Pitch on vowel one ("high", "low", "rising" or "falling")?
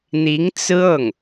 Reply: rising